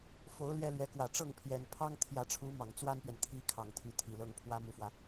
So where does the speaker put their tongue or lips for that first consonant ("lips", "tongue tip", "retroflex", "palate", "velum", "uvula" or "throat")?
lips